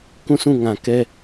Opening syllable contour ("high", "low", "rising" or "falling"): falling